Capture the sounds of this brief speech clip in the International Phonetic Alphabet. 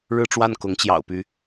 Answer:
ɻ ɻ̩˥˧ ʈ͡ʂ w a˥˩ n k ʊ˧˥ ŋ t͡ɕ j ɑ̰˨˩ ʊ̯ p y˧˥

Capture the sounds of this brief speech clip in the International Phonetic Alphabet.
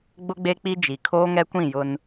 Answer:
ɡ͡b ʊ˦ ɡ͡b e˦ k͡p i˦ d͡ʒ i˨ kʰ oː˦ ŋ ɛ˦ kʷ ĩ˦˨ j ʊ˦ n

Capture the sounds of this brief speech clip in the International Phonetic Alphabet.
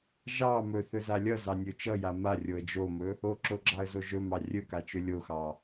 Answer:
ʒ ɑ m ɵ θ ɵ z a lʲ ʌ z ɑ nʲ ɵ t͡ʃ ʌ j a m a rʲ o ə̯ d͡ʒ o m ɵ | o ǁ o ɡ͡ǁ ɑ ə̯ z o ʒ ɵ m ɑ rʲ ɵ k a t͡ʃ ɵ lʲ o x ɑ

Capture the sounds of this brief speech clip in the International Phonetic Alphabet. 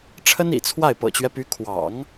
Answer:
ʈ͡ʂʰ ə˥ n ḭ˨˩ t͡sʰ w a˥˩ ɪ̯ p ɤ̰˨˩ t͡ɕ ɥ ɛ˦ p y˧˥ kʰ w ɑ̰˨˩˦ ŋ

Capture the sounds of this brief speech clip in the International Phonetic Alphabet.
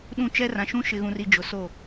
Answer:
ɗ ũ˦˨ t͡ʃ ɛ˦ r ã˨ ʃ ũ˦ ʃ ɪ˨ ɣ ũ˨ r i˨ d͡ʒ ʊ˨ s o˦˨

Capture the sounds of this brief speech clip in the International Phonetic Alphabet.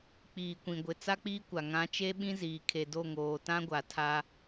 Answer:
k͡p iː˨ kʷ ĩ˨ ɡʷ ɪ˨ t͡s a˦ k͡p iː˦ kʷ a˨ ŋ ã˨˦ t͡ʃ e˦ ɓ ĩ˦ z iː˨ kʰ e˨ d o˦˨ ŋ oː˨ t ã˦ ɡʷ a˨ tʰ a˦

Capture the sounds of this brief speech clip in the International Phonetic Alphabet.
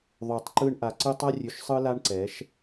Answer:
ðˤ ʉ˨ tˤ ǃ ɯ˧ ɳ ʔ a˨ ǀ ɯ˧ tˤ a˦ rʲ ʉ˧ ʃ sˤ ɯ˦ l a˦ ɳ ǀ ɛ˨˦ ʃ

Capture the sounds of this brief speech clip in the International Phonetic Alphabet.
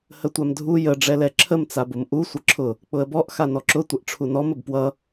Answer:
h ə tʷ a m dʱ u j ə ɖ͡ʐ ɛ l ɛ ǁʰ ə m t͡s a b ʊ m ʔ u sʷ ʌ ǁʰ ʊ | k͡p ʊ ə̯ b ɔ ʔ x a n ɔ ǁ ʊ tʷ ə ʔ ʈ͡ʂʰ u n ɔ m ə b p w ʌ

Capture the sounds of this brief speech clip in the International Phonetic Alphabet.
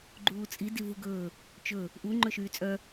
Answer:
ɡ͡ǃ uː t͡sʼ i d i v u ɡ ɵː | t͡ʃ ɵ | ʔ u ŋ͡ǃ ɵ ʃ yː t͡sʼ œ

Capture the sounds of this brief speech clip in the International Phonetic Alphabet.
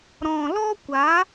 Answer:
ɾ ɔ̃˨ l ɔ˦ kʷ a˨˦

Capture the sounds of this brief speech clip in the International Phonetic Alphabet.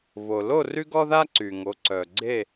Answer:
β o˩ l o˦˨ r y˦ ɡ ɔ˦ ð a˦ ǀ y˩ ŋ o˩˧ ǀ œ˩ ɡ͡ǀ e˦˨

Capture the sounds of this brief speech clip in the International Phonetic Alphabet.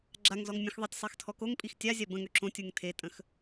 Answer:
ɡ͡ǁ a ŋ z ɔ ŋ mʲ ə̃ x ðˤ ɛ tʲ sˤ e x tʰ ɔ k o ŋ pʼ i x tʲ a zʲ a b ə̃ ŋ ø ǁ õ tʲ u ŋ tʰ e tʼ ə̃ x

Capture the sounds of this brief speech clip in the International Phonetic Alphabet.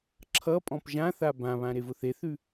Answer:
ǁʰ ʌ pʼ ɔ̃ p ʒ ã θ a b ã β ã ɾ e v ʊ θ e θ ʉ

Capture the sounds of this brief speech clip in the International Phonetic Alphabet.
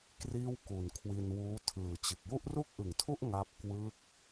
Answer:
k r iː˥˩ w k u˨˩ n kʰ w i˧ n w uː˦˥ tʰ ɯː˨˩ t͡ɕ ɯ˨˩ k̚ j u˥˩ ʔ r u˥˩ k̚ ʔ ɯ˨˩ ŋ tʰ u˥˩ ʔ ŋ a˥˩ p̚ k w ɯ˦˥ k̚

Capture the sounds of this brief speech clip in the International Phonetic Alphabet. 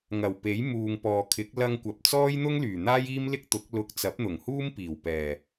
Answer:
ŋ ɐ˨˩ w p e˨˥ j m uː˨ ŋ p ɔː˨ kʰ ɪ˨˥ k̚ l ɐ˧ ŋ kʷ ɐ˨ p̚ t͡s ɔː˥ j n̪ ʊ˥ ŋ l yː˨˩ n̪ aː˥ j iː˥ m l ɪ˥ k̚ t̪ ʊ˨˥ k̚ l ʊ˨˥ k̚ t͡s ɐ˨˥ p̚ n̪ ʊ˨˩ ŋ h uː˥ m p iː˨˩ w p ɛː˨˩

